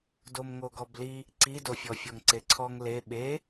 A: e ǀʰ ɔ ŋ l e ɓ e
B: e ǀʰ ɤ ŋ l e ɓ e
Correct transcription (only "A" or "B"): A